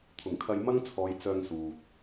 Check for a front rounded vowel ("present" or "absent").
present